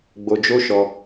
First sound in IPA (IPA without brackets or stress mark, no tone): ɡ͡b